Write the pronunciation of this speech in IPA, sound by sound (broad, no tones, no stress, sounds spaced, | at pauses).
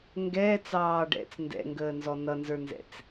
ŋ ɡ ɛː t͡s ɑː ɖ ɛ̰ t͡s n d ɛ̰ ŋ ɡ əː n z ɔ n ʌ n z ə˞ n z ɛ̰ t͡s